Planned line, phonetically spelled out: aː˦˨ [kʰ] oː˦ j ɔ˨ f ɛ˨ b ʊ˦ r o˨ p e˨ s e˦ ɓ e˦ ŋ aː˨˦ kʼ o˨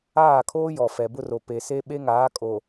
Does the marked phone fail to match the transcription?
no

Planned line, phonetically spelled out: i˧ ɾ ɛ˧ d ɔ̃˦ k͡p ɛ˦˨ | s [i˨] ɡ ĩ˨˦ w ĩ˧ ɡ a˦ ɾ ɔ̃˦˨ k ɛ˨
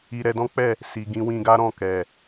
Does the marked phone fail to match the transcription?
no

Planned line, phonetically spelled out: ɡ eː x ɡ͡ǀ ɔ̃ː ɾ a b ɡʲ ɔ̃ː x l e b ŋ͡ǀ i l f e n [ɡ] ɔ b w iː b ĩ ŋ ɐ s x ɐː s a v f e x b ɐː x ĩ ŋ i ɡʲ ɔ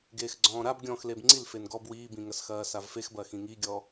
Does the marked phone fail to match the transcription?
no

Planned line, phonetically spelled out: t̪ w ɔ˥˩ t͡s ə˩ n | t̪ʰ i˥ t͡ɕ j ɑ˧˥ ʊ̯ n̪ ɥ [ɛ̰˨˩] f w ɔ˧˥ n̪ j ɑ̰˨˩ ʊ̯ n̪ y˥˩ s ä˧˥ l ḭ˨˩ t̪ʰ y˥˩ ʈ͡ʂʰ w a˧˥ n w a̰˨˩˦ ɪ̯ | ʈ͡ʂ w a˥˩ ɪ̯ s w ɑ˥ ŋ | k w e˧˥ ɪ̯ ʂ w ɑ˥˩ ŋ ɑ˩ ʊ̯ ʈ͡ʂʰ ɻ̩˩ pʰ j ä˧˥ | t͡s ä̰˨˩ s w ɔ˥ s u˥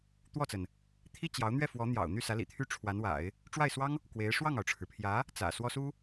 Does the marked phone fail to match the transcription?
yes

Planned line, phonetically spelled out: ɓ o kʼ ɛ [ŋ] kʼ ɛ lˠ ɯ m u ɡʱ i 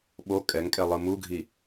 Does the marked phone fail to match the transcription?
no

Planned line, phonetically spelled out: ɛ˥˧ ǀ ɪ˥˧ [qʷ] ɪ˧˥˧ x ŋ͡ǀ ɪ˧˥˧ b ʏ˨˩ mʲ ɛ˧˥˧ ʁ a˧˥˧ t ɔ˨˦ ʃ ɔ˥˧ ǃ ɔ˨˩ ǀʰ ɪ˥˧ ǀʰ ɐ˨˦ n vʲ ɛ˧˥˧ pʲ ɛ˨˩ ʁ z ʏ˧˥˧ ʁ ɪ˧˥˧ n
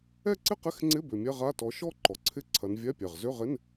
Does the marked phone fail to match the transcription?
yes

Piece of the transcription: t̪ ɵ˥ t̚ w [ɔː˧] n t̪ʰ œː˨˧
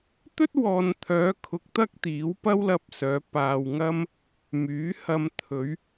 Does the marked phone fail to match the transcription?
no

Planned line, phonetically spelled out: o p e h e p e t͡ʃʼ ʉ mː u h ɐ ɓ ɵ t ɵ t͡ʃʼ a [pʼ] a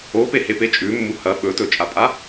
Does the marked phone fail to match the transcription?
no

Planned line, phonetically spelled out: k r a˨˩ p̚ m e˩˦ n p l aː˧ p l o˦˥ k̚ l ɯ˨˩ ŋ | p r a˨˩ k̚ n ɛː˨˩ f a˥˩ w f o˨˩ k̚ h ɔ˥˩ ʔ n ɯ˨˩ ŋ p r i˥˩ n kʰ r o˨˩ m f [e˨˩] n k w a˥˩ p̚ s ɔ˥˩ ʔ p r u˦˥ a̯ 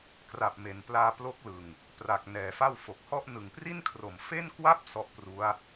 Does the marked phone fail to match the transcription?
yes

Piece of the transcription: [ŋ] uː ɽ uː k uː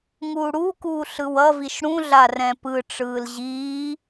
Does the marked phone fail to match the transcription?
no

